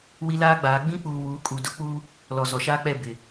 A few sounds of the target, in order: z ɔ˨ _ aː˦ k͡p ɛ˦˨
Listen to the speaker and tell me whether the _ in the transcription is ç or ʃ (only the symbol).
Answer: ʃ